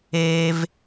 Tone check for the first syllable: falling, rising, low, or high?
high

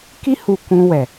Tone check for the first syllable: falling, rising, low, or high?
high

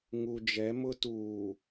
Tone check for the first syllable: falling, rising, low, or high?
low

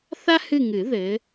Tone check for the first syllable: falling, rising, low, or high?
high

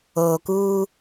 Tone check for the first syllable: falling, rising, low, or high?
low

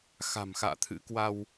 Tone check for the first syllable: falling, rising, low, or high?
low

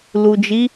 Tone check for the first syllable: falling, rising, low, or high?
low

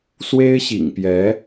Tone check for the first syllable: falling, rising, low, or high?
high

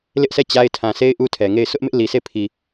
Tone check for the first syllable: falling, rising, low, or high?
high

